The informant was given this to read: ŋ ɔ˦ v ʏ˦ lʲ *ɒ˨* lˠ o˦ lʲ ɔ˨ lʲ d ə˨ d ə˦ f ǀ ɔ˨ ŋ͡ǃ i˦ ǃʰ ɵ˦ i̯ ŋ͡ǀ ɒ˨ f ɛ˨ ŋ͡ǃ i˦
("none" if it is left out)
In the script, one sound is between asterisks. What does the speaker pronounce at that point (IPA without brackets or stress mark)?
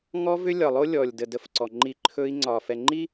ɒ˨